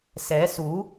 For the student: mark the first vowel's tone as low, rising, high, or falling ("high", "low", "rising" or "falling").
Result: rising